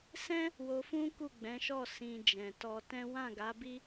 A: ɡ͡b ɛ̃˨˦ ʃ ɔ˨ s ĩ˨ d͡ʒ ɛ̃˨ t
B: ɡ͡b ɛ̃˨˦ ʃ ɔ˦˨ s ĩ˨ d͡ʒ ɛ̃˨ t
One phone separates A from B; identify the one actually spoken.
B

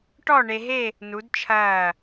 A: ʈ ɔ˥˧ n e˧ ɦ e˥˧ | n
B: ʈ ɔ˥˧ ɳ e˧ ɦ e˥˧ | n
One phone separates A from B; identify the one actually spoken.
B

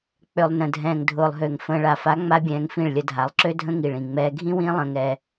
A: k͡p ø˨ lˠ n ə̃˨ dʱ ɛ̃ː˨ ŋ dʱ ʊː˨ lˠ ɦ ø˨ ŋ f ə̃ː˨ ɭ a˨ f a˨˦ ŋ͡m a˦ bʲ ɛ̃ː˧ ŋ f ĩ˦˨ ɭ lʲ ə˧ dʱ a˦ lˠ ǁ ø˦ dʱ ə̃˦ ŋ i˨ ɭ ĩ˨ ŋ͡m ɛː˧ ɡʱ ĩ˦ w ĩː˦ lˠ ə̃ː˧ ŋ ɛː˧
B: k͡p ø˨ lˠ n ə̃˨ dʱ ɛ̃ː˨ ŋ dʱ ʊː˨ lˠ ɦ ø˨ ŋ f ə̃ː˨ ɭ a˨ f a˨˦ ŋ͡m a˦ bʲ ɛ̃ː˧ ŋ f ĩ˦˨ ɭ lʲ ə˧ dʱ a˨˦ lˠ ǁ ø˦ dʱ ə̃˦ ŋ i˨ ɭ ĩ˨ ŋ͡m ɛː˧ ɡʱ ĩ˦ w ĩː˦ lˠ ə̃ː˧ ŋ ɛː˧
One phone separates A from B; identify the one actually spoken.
B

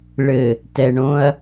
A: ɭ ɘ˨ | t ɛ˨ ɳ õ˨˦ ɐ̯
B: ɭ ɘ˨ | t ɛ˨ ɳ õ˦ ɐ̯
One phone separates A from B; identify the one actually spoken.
B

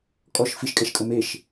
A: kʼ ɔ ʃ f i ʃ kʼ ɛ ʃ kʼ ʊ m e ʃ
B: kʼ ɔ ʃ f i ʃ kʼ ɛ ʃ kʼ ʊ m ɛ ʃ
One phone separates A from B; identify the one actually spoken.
A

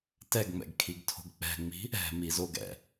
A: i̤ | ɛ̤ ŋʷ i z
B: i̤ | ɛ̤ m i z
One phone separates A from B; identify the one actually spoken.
B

